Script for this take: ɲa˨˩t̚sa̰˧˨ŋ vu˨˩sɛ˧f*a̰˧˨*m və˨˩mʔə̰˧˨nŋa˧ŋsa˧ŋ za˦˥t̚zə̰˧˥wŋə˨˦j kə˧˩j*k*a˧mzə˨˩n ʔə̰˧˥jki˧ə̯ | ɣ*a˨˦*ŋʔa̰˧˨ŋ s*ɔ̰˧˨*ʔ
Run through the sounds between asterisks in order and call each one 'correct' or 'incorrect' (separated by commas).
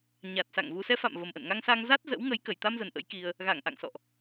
correct, incorrect, incorrect, correct